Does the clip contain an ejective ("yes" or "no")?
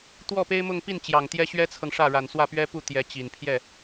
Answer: no